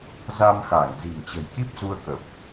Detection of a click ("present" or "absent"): absent